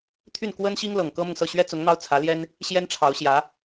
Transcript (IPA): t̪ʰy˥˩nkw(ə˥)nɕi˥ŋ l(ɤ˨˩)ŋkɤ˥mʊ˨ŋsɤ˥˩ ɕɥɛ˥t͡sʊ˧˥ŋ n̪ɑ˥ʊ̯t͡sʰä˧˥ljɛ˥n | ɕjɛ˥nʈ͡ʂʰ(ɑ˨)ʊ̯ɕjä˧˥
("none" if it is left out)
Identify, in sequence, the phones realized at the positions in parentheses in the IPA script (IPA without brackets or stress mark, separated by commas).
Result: ə˥, ɤ˨˩, ɑ˧˥